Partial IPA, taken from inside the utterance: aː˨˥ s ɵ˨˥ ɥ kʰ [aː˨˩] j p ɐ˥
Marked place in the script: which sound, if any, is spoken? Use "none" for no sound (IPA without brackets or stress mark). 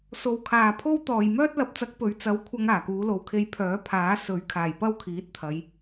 aː˨˩